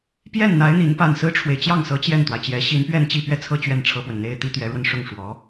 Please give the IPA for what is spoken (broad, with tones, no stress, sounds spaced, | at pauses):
p j ɛ˥˩ n n̪ a˧˥ ɪ̯ n̪ i˧˥ n p a˥˩ n s ɹ̩˥ ʈ͡ʂʰ w e˨ ɪ̯ t͡ɕ j ɑ˥˩ ŋ s ɤ˧˥ t͡ɕ j ɛ˥˩ n t̪ w a˩ ɪ̯ t͡ɕ j ɛ˧˥ ɕ i˧˥ n p ɥ ɛ˥˧ n t͡ɕ i˥˧ p ɥ ɛ˥˩ t͡sʰ ɤ˥ t͡ɕ ɥ ɛ˥˩ n ʈ͡ʂʰ ɤ˥ p w ə˨ n n̪ e˥ ɪ̯ t̪ i˥ t̪ ɥ ɛ˧˥ ɻ w ə˧ n ʂ ʊ˥˩ ŋ ʂ w ɔ˧˥